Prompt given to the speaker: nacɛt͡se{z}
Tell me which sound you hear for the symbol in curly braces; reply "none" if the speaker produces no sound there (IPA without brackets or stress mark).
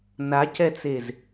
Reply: z